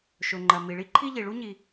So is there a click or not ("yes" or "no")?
yes